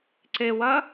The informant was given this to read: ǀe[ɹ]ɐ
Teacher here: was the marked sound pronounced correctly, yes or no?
no